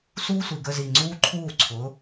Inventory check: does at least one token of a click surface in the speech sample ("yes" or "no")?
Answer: yes